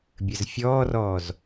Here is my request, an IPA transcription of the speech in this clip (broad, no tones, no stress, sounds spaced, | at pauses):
bʲ ɘ z fʲ ɔː r ɔː z